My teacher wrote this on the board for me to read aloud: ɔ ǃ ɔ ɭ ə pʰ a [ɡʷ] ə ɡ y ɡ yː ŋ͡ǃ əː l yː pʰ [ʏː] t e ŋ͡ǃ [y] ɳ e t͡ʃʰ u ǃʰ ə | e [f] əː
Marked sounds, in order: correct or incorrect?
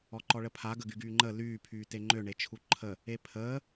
incorrect, incorrect, incorrect, incorrect

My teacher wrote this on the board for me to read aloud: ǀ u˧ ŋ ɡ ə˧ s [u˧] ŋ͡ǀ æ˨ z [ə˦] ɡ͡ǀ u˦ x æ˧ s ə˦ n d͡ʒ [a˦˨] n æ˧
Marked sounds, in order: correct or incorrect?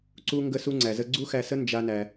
correct, incorrect, incorrect

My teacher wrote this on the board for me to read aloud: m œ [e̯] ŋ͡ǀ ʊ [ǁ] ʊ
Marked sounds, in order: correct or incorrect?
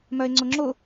correct, incorrect

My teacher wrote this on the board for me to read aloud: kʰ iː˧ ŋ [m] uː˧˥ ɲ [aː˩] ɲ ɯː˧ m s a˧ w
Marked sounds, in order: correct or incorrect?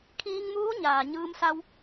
correct, correct

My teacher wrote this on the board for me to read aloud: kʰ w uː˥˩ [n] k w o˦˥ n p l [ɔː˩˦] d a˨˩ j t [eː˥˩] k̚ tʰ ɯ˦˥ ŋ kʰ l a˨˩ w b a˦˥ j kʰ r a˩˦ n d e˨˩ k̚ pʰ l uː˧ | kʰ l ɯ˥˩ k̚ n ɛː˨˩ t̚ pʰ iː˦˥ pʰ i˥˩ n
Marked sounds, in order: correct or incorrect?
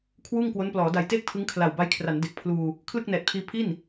incorrect, correct, correct

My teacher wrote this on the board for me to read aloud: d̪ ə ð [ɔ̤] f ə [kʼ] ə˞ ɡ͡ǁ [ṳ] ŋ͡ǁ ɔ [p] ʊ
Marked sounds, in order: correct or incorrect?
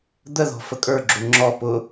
correct, correct, incorrect, correct

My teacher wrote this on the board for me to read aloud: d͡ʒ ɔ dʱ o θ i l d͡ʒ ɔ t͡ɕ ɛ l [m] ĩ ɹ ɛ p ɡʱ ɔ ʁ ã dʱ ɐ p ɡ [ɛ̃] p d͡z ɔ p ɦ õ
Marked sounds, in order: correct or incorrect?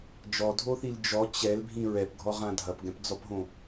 incorrect, correct

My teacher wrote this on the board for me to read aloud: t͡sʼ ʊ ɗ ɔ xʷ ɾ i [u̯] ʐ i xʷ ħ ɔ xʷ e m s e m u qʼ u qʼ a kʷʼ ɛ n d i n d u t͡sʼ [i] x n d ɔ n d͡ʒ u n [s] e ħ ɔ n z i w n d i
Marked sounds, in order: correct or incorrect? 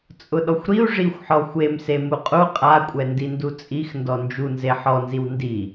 correct, correct, incorrect

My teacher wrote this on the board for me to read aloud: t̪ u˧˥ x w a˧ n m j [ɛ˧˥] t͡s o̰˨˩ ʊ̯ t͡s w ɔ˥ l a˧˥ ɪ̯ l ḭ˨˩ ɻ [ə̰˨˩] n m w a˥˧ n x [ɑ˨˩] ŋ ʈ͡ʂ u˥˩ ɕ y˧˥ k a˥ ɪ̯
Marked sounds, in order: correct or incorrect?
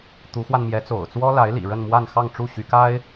correct, incorrect, incorrect

